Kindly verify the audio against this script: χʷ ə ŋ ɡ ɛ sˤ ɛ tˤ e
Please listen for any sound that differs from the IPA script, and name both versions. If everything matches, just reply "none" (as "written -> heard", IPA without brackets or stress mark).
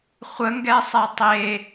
none